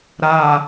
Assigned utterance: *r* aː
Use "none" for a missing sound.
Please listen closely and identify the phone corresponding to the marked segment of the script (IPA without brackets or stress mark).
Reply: ɾ